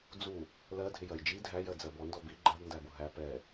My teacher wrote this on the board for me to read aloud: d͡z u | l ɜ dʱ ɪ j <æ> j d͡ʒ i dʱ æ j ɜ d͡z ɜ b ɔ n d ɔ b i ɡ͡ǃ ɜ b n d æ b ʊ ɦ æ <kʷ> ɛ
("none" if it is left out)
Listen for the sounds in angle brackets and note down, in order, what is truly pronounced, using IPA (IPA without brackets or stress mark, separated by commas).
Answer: ɜ, p